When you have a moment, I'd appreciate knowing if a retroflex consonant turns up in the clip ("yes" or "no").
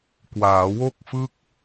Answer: no